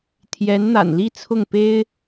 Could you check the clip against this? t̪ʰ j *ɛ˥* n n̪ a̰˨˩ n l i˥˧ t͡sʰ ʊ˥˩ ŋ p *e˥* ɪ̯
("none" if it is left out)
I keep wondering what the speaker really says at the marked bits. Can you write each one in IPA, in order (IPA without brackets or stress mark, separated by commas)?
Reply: ɛ˧˥, e˥